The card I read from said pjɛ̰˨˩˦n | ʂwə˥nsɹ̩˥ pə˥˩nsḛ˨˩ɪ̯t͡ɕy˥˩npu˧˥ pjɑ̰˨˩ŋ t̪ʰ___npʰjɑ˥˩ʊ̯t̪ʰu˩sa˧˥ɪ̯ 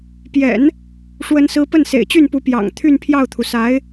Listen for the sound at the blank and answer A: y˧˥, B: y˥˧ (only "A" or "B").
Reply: B